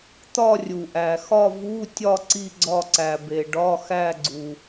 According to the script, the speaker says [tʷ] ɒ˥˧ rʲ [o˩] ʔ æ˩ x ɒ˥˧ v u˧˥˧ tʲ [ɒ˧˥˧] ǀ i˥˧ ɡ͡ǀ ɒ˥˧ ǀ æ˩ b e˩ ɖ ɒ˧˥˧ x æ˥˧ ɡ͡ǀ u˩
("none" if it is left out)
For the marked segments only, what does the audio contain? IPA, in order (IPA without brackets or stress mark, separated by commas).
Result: t̪, u˩, ɒ˥˧